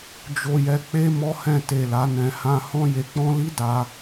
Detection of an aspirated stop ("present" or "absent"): absent